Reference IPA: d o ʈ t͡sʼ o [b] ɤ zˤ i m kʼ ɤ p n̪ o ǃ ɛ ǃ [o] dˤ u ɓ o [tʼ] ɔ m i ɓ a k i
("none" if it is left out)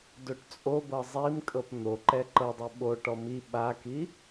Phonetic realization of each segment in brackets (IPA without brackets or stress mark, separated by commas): b, ɤ, ʈ